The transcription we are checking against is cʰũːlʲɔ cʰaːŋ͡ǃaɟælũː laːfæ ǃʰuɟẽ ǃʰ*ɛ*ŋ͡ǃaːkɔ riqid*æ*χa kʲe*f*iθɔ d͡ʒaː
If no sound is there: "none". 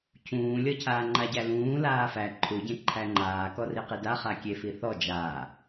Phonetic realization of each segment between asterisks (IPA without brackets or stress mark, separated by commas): æ, a, f